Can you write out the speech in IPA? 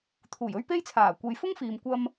t̪ʰ uː˨˩ j ɵ˥ ɥ p e˥ j t͡sʰ aː˨˩ kʷ e˨ j f ʊ˥ ŋ f iː˨ m kʷ ɐ˧ m

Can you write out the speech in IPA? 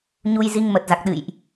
ɲ u˧ j z i˧ ŋ m ə˨˩ t̚ z a˨˩ k̚ ɗ ɨ̰˧˨ j ʔ

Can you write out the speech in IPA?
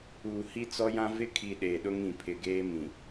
uː˨ h i˦ t͡s ɔ˦ j ã˦ v ɪ˦ kʰ i˨ ɗ eː˨ ɗ ʊ˦ ŋ ĩ˨ pʰ ɪ˨ ɡ eː˦ m ĩ˨

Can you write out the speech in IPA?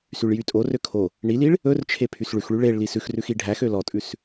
s y ɭ j y tʼ o r ø kʰ o | ɳ i l i ɭ | ɵ r t͡ʃʰ e pʰ y s ɭ ʉ x ɭ y ɭ e ɭ l i s ʉ x r ʉ x i ɖʱ æ x ø l ɔ tʼ ʉ s

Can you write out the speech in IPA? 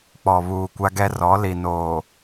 k͡p ɔ˨ β uː˨ kʷ a˦ ɡ ɛ˦ r ɔ˨˦ l i˨ n oː˨

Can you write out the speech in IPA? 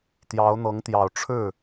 t̪ j ɑ˧˥ ʊ̯ n̪ ɤ˧˥ ŋ t̪ j ɑ˨˩ ʊ̯ ʈ͡ʂʰ ɻ̩˥˩

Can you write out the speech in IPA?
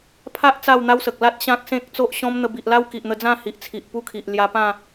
pʰ a˦ ʔ t͡s a˥˧ w n̪ a˦ w s ə˨ k̚ l a˦ t̚ ɕ ã˦ k̚ s ẽ˦ k̚ t͡s o˦ ʔ ɕ ɔ̃˦ m n̪ ə˧ b i˨ ʔ l a˦ w k i˨ ʔ n̪ ə˧ d͡z ã˥˧ h i˨ ʔ t͡sʰ i˨ ʔ p u˦ kʰ i˨ ʔ l j a˧ p ã˥˧

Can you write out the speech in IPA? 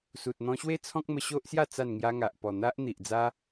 s u˨ t̚ n̪ ɔ̃˧ ɕ w e˥˧ t͡sʰ ɔ̃˦ k̚ m ə˧ ɕ o˦ ʔ s j a˥˧ t͡s a˥˧ n ŋ j a˦ ŋ a˨ ʔ p ɔ˨˩ n̪ a˦ ʔ n̪ i˨ ʔ d͡z a˦

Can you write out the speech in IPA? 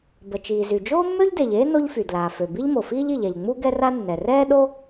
b ə˩ t͡ʃ iː˩ z y˩ d͡ʒ oː˥ mː ø˥ ʎ d e˩ ʎ eː˥ n o˥ ʎ f y˩ d l aː˩ f ø˩ b i˥ ʎ m o˩ f iː˥ ʎ i˩ ʎ ɛ˩ ʎ ŋ͡m u˥ ɡ ɛ˥ r a˥ nː ɛ˩ r ɛː˥ ɗ o˥

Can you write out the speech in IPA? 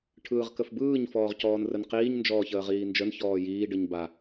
ʈʰ ɯː ʁ k ə f b ɯː ɲ f ɔː ʁ c ɔː n r ə n q iː ɲ n d͡ʒ ɔː ç əː ʁ iː n d͡ʒ ə n ç ɔː j iː ɖ ɯ ɲ b a

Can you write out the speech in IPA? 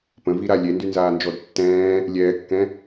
p ə̃ v i ɾ a lʲ e n d y n z aː n d͡ʒ ɔ d tː ɛ̃ː | lʲ ɛː kː ɛ̃

